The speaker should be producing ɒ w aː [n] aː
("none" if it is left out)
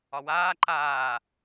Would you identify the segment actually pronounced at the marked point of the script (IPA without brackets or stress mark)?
ǃ